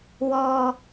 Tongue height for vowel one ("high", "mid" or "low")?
mid